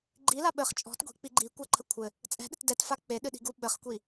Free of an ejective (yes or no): no